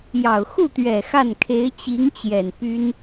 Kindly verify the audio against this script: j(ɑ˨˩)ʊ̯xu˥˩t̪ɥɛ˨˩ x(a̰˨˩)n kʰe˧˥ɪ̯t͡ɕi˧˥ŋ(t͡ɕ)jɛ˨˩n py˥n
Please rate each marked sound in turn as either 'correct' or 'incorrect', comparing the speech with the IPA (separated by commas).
correct, incorrect, correct